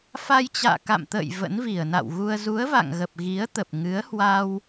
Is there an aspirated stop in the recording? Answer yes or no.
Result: no